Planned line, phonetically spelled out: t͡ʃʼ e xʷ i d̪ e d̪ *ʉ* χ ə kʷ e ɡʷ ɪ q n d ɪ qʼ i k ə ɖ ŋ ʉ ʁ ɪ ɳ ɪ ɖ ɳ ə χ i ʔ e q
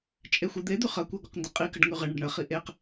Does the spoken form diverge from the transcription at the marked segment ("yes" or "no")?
no